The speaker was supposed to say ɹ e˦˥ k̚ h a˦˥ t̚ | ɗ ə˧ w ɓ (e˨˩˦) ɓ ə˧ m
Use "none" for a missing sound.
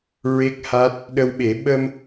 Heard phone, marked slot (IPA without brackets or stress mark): e˨˩˦